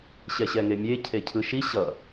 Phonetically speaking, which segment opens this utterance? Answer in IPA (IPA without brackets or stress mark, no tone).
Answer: ɕ